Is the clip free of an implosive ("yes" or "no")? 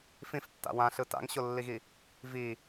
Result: yes